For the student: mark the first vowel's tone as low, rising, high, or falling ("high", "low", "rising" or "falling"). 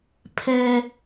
high